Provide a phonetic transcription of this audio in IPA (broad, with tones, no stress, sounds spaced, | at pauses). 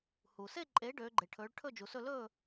h u˩ s e˥˨ ǃʼ eː˩˥ ɖ øː˩˧ ɡ͡ǃ e˩ ʈʰ ɵː˩˧ ɭ ʈʰ ɵ˥˨ d͡ʒ u˩ s ɵ˥˨ l ɵː˥˨